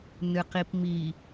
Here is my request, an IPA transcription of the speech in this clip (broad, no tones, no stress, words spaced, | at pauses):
nɨqipmi